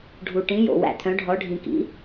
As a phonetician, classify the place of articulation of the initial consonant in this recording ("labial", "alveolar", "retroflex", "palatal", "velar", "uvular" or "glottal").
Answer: retroflex